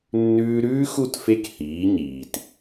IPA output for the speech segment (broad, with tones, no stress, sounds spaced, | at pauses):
nː ʉː˧ ɾ ʉː˦ x u˦˨ t f e˦ k h iː˨˦ ɲ iː˨ t